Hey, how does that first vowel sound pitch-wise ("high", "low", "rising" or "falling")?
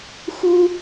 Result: high